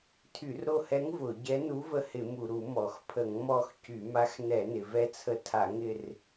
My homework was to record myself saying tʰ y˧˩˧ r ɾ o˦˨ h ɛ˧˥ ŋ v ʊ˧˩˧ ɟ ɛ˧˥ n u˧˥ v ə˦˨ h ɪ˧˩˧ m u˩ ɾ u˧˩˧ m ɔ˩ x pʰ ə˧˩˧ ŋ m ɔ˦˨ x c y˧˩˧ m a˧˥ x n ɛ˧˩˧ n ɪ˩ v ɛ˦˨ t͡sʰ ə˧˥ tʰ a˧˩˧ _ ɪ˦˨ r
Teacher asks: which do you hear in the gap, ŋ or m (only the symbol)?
ŋ